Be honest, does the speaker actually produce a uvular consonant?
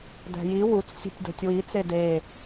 no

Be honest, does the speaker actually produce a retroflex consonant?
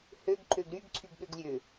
no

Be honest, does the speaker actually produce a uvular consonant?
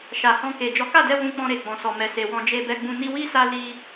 no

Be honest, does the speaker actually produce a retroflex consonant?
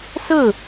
no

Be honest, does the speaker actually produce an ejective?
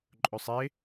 yes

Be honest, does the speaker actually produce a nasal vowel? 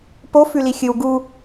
no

